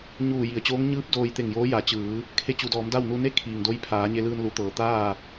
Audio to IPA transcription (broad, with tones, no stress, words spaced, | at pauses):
ɲuː˧˩ji˩ə̯t͡ɕoː˧˥ŋ ɲɯː˧˥p̚ doː˧jt̪e˧˩ŋjoː˧˥ ja˩˧t͡ɕɯː˩˧ | kʰe˧˥t͡ɕu˩˧dɔː˩˧mda˥˨w nu˧ne˥˨ kʰiː˩ŋdo˧˥jpʰaː˩˧ ɲe˧lɯː˧nlu˩˧t̪ɤː˩ t̪aː˥˨